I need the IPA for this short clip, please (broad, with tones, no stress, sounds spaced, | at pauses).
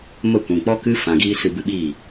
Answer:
m ə˦˨ kʷ ĩ˨ k͡p ɔ˦ k ɨ˦ f ã˨ ɡ iː˧ s ɨ˧ b ɨ˧ ɓ iː˦˨